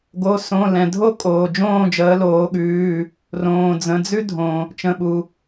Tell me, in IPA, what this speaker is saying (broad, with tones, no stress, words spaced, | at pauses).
ɡo˩˧˩sõ˩˧˩lɛ̃˩dʱo˥˨ kʼoː˩ d͡ʒõː˥˨d͡ʒəː˩˧loː˩˧ɠʉː˩˧˩ | rõː˩ d͡zə̃˩˧˩d͡zʉ˦dʱõ˩ | t͡ʃə̃˩˧˩ɓu˩